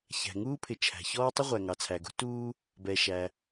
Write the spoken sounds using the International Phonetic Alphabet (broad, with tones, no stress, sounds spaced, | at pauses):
ç æ̤˩ ŋ uː˥ pʰ ɪ˩ t͡ʃʰ æ̤˩ ç ɔː˥ tˤ ɪ˥ ʁʷ æ˩ ŋ ɑ˩ t͡sʰ æ˩ ɡ ṳ˥ t uː˥ | b ɛ˩ ʃ æ˩